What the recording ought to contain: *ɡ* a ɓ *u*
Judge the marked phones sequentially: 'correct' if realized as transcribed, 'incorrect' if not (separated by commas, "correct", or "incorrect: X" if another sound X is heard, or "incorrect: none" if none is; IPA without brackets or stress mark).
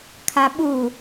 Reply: incorrect: kʰ, correct